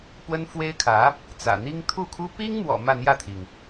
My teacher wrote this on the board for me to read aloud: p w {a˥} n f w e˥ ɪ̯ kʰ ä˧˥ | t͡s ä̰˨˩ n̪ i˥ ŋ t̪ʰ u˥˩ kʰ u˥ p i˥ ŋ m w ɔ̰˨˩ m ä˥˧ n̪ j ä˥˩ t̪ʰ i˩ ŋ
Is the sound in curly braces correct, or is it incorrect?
incorrect